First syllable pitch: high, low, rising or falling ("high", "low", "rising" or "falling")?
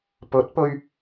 rising